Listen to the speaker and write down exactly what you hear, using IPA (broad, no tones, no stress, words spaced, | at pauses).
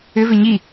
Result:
ʏvʏ ɲi